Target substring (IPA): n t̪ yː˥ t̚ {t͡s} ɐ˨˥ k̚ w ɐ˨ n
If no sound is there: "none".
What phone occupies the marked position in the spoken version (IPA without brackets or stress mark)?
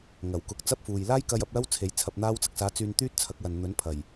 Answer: t͡sʰ